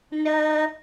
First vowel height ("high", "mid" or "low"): mid